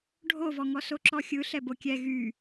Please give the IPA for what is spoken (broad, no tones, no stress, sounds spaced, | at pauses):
ɖʱ o v ɔ ŋ ɔ s o ǁ ɔ xʲ ɯ ɬ ɛ b o kʲ ɛ ɣ y